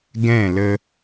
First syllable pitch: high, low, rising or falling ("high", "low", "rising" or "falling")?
falling